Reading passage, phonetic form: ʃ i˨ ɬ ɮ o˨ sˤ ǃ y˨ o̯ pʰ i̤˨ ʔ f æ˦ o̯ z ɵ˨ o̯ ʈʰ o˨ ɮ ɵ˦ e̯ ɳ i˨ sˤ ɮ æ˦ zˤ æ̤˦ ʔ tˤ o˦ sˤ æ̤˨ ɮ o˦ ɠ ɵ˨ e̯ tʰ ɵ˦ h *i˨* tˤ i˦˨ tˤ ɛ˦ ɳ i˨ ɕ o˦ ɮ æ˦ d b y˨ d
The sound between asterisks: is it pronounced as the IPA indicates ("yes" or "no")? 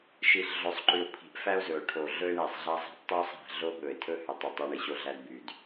no